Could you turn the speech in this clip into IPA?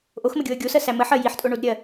ʔoxməɡʲoə̯ ɡʲosɜsæ məħɜ jiħtʼoɳodɾʲɜ

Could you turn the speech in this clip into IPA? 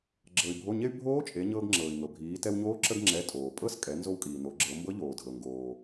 ɡ͡ǁɤ˩y̯bʱo˩˧˩ɲe˧y̯ bʱoː˧˥t͡ʃʼe˩˧ ɲɤː˧ɡŋ͡ǁɤː˩i̯ŋɤ˩ bʱiː˩˧tɛ˧wɲoː˧˥ ǁə˧ɡŋ͡ǁɛ˩˧˩ tʼoː˩pʼɤ˧˥skʼɛ˩˧ nzo˧wkʼiː˩no˩˧ ɡ͡ǁɤ˩˧mbɤ˧˥ʎoː˩ dʱɤ˩ ŋɡoː˩

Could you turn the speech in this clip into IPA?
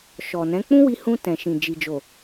ʃɔ˨nɛ̃˨˦ k͡pũ˦wi˧ hũ˧ tɛ̃˨ʃĩ˨ d͡ʒi˨d͡ʒo˨

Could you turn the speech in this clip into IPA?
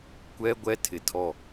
kʷɛ˦ ɡʷɛ˦tʰɪ˨tʰɔ˦˨

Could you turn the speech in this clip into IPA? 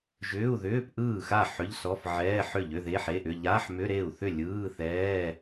ʒʏː˧˥˧u̯ðʏː˧˥˧p ʔɯː˥˩xa˥˩ ħʏ˧˥˧ʎsɔ˧˥˧fʕɛː˧˥˧ħʏ˥˩ ʎʏ˧˥˧ðe˧˥˧ħe˧˥˧ʔʏ˧˥˧ ʎa˧˥˧ħmʏ˧˥˧ɾe˥˩u̯θʏ˥˩ lʲɯː˧˥˧θɛː˧˥˧

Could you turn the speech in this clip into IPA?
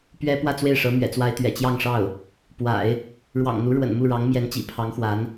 pɥɛ˥ pwä˥˧t͡swe˥˩ɪ̯ʂɤ˧˥ mɥɛ̰˨˩t͡swa˥ɪ̯t̪ɥɛ̰˨˩ t͡ɕjɑ˥˧ŋʂɑ˥˩ʊ̯ | pwa̰˨˩˦ɪ̯ | ɻwɑ̰˨˩ŋn̪u˧˥ ɻwə̰˨˩nmu˥˩ɻɑ˧˥ŋ mjɛ˧˥nt͡ɕḭ˨˩ pʰɑ˧˥ŋxwa˧˥n

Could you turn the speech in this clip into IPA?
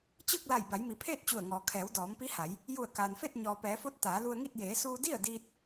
t͡ɕɯː˥˨k̚la˧˩j ba˩˧jmi˩pʰeː˥˨t̚ t͡ɕu˧˩ə̯ŋɔː˩ kʰɛː˩˧wdɔː˩˧mpi˧˥ha˩˧j | ju˧˩ə̯kaː˩nfe˥˨t̚ ɲɔː˩pɛː˩˧fo˧˥t̚ t̪aː˩˧lu˧ə̯ŋi˥˨t̚ jeː˩˧suː˧di˥˨ə̯ diː˧t̚

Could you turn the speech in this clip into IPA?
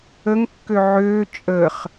əŋkːø ʕøː t͡ʃʼəːχ

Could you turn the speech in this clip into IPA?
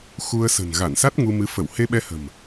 xu˧ə̯sə̤˨˩n ɣa˧˩nsa˦˥t̚ ŋu˧mɨ˨˦ fə˧˩whe˧ɓɛ˧hə̤˨˩m

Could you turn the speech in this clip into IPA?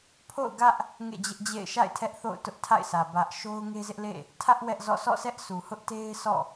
pʰo̰˦˨ʊ̯ɡä˦ʔ | ŋḛ˦˨d͡ʑɪ˦ʔd͡ʑḛ˦˨ɪ̯ ʃa̰˦˨ɪ̯ tʰɛ˦ʔθo̰˦˨ʊ̯ tʊ˦ʔ tʰa̰˦˨ɪ̯sä˨ bä˦ʔ ʃo˦ʊ̯ŋe˦zɪ˦ʔlḛ˦˨ | tʰä˦ʔ wɛ˦ʔzɔ̰˦˨ sʰɔ̰˦˨sɛ˦ʔsu˨hʊ˦ʔ te˦ɪ̯ sɔ̰˦˨

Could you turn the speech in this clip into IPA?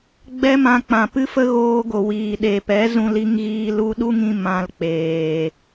ɡ͡bɛ˦ mã˧ k͡pã˨pɨ˦fə˦ ɣoː˧ɡo˨ wiː˨ɗe˨pɛ˨˦zũ˧ li˧ŋɣiː˧ lu˧ɗu˦ŋĩ˧ mã˧lk͡peː˨

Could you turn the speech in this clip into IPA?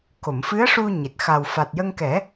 ko˨˩˨mfɨ˧˥ə̯ ʂu˧ ɲe˨˩t̚ xa˨˩w fa˨˩t̚jə˧ŋkɛ˨˩˦

